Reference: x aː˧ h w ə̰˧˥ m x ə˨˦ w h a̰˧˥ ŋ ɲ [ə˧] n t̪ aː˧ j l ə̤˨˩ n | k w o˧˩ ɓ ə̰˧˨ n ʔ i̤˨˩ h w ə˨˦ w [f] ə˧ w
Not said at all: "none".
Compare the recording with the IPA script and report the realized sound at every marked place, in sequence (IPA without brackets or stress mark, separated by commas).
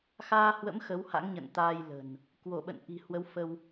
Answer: ə̰˧˨, f